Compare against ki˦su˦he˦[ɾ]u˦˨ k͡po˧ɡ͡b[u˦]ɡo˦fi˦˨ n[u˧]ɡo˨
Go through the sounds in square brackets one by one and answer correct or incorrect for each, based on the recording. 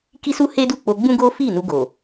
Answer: incorrect: d, incorrect: ũ˦, correct

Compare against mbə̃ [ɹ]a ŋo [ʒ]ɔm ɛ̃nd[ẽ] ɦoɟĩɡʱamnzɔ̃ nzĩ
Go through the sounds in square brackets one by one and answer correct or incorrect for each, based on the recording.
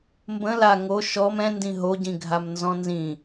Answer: incorrect: l, incorrect: ʃ, incorrect: ĩ

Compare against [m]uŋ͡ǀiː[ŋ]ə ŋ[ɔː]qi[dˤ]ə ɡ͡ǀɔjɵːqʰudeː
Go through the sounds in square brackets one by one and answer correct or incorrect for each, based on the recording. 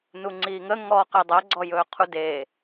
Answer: incorrect: n, correct, correct, correct

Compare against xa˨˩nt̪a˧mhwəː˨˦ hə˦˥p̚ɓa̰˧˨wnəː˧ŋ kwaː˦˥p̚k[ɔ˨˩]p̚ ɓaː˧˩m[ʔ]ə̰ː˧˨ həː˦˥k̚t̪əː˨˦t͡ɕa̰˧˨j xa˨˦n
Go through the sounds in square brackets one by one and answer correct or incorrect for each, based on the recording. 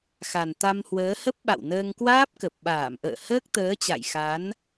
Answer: incorrect: ə˨˩, correct

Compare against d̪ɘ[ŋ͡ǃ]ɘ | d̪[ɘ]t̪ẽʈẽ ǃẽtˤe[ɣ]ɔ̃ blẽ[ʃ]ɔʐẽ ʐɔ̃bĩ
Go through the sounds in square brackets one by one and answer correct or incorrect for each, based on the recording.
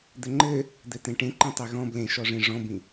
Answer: correct, correct, correct, correct

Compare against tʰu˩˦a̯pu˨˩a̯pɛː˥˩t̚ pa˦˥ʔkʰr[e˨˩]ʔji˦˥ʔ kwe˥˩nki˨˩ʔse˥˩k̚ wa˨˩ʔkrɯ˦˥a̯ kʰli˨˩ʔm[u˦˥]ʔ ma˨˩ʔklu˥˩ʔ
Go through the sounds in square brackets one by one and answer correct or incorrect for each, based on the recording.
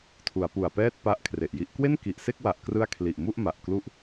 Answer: correct, incorrect: u˥˩

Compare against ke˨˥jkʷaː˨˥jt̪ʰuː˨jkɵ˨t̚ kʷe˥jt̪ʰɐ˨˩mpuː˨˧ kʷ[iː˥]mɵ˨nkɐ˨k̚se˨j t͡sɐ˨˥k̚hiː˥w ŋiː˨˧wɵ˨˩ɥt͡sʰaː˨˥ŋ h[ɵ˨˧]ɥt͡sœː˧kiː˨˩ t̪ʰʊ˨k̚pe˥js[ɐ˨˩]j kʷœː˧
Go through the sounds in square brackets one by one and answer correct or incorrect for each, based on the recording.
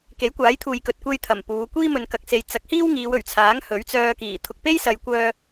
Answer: correct, incorrect: ɵ˨˥, incorrect: ɐ˨

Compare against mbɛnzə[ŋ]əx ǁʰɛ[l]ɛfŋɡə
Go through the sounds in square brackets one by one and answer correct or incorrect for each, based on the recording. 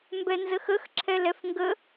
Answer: incorrect: x, correct

